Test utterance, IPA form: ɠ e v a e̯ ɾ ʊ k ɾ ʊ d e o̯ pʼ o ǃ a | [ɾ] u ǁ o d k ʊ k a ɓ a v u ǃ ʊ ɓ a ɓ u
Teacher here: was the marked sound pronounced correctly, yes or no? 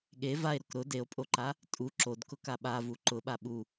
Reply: no